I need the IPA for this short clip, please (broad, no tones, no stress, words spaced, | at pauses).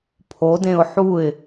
pʰodẽʊ̯ ħuɪ̯